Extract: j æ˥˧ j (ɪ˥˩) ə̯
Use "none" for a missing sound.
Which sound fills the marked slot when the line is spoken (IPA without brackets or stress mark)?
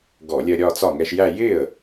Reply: ɪ˥˩